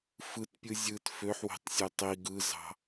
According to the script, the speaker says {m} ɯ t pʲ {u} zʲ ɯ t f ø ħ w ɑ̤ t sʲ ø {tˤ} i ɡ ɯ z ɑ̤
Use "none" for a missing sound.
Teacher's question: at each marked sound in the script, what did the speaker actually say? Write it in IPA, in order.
f, ɯ, tˤ

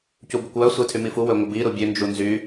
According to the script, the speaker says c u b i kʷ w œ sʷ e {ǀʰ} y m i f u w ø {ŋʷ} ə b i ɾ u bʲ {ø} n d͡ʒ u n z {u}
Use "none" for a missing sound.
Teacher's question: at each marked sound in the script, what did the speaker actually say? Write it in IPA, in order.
tʰ, ŋʷ, ø, y

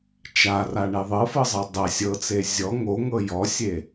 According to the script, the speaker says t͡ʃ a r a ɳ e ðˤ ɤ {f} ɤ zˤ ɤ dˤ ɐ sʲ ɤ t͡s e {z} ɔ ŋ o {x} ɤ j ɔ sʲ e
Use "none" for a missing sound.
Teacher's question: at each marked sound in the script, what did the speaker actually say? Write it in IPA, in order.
f, zʲ, ŋ

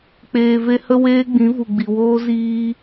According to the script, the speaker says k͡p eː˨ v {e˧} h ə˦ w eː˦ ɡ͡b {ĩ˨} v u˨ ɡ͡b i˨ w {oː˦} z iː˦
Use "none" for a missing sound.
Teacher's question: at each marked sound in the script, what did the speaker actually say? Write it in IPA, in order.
e˧, ĩ˨˦, oː˦

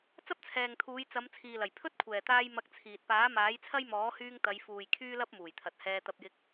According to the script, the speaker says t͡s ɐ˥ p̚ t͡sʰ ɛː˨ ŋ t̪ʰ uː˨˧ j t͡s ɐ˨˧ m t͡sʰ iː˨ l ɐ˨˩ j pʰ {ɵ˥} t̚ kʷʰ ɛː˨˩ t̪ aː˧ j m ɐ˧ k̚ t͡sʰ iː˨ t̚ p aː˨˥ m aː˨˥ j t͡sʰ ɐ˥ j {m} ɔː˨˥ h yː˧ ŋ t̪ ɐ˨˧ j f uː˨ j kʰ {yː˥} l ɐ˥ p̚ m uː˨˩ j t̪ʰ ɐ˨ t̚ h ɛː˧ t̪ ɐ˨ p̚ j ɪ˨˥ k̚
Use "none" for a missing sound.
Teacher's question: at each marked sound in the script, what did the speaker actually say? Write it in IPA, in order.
ɵ˥, m, yː˥

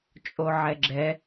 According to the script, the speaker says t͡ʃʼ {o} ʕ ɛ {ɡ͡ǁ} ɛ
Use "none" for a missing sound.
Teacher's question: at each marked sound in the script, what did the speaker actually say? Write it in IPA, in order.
o, ɡ͡ǁ

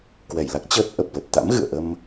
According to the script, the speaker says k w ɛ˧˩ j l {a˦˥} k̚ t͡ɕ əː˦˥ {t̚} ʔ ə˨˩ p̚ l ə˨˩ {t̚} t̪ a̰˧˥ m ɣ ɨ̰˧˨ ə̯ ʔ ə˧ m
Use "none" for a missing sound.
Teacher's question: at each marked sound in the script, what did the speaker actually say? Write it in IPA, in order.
a˦˥, t̚, t̚

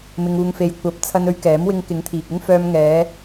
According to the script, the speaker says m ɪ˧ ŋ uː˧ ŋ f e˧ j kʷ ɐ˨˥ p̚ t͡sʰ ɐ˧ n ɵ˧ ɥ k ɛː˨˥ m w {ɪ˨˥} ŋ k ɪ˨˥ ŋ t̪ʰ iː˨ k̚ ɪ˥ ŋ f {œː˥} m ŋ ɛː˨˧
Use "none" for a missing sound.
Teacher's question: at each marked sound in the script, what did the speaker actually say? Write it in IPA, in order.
ɪ˧, œː˧

